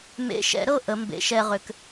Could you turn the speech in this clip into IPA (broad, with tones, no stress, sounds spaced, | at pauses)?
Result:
m ḛ˨˦ ʃ ɛ̰˨˩˦ ɾ ɤ˥˩ ʔ ə˨˩˦ m b ḛ˨˩˦ ʃ ɛ˥˧ ʁ ʏ˨˦ k